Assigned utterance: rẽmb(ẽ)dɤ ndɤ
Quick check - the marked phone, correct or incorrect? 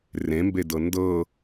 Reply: incorrect